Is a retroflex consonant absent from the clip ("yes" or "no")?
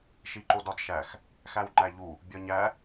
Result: yes